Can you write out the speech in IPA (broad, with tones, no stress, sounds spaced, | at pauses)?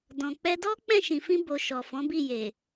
d ɔ̃˨ k͡p ɛ˧ d ɔ˦ k͡p ɛ̃˦˨ ʃ ĩ˨ f ĩ˧ b o˨ ʃ ɔ˨ f ɔ̃˨˦ b i˦˨ j e˨